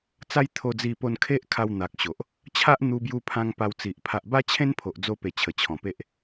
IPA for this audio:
t͡s a˦ j t̪ʰ o˧ d͡z i˧ p o˧ n kʰ e˦ ʔ kʰ a˧ w n̪ a˨ k̚ ɕ o˨ ʔ | t͡ɕʰ a˦ ʔ n̪ u˧ b j u˧ pʰ ã˧ ŋ p a˧ w t͡s i˨ ʔ pʰ a˨ ʔ b a˦ t͡ɕʰ ẽ˦ n pʰ o˨ ʔ d͡z o˧ p e˨˩ t͡ɕʰ ə˨˩ t͡ɕʰ ɔ̃˨˩ p e˦ ʔ

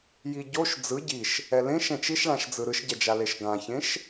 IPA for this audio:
j i ɟ o ʃ d͡z ɯ ɟ i ʃ | ɛ l ẽ ʃ ɛ̃ t͡ʃ i ʃ ɭ ã ʃ d͡z ɯ ɾ ɯ ʃ ɟ ɛ d͡ʒ a l e ʃ ɡ ã ç ẽ ʃ

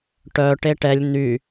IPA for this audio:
ʈ œ ʈ e ʈ ɛ lʲ n̪ y

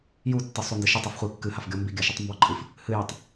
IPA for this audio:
j u tː ɨ sˤ u n d ɨ ʃ i tˤ i f χʷ ɨ kː ɨ h a f ɡʲ ɔ m b i ɡʲ a ʃ ɨ tˤ m b ɔ ǃʼ ɨ f | h ɨ j a tˤ

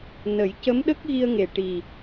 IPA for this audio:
n ə˨˩˦ j c ə˧˥ m ɗ ə˦˥ k̚ ɣ i˧ ə̯ ŋ e˨˩ ʈ i˨˩

